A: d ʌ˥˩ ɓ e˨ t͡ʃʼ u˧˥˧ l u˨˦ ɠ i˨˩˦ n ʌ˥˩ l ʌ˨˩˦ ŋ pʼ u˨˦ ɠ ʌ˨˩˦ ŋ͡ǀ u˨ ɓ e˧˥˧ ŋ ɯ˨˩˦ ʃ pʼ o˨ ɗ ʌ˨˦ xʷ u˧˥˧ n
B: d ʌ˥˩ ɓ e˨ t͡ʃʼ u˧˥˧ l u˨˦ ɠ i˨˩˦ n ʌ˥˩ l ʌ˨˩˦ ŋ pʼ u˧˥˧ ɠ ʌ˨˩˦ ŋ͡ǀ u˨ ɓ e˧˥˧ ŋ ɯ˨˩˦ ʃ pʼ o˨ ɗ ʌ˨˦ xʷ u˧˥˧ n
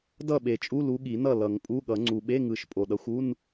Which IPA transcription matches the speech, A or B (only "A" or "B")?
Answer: B